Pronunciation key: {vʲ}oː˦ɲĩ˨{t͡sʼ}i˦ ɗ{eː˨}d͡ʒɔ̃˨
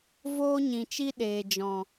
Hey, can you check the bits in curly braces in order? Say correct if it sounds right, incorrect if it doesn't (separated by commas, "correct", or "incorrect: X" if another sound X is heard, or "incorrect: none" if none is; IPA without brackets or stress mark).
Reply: incorrect: v, incorrect: t͡ʃ, correct